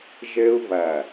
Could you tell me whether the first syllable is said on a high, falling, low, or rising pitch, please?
high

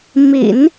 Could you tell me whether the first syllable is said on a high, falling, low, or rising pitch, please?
low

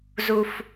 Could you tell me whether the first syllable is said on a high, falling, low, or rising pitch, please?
low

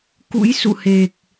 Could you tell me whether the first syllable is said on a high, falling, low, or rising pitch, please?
rising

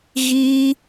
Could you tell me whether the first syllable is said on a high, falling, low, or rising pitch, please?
high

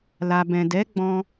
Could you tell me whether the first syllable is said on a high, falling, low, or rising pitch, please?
low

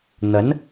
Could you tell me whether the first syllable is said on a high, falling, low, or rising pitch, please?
rising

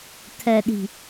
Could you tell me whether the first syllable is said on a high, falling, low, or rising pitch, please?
low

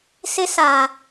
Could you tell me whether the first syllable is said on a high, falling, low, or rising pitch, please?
high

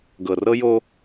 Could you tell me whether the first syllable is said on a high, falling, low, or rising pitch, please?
low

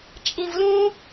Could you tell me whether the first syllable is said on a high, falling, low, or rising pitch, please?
high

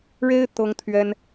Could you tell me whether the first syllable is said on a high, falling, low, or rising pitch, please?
high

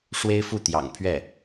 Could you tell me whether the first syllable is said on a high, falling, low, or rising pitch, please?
high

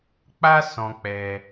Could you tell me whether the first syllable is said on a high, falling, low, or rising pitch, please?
high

